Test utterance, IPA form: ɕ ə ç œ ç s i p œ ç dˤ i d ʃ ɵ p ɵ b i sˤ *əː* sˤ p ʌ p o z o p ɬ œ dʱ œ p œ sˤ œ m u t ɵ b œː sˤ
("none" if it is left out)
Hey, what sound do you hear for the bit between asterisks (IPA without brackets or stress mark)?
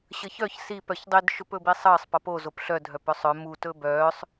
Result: əː